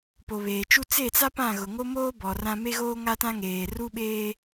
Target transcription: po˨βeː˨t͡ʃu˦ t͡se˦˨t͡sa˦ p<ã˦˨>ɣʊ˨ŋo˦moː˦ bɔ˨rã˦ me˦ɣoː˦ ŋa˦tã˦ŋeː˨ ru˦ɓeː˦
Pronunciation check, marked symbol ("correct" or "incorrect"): correct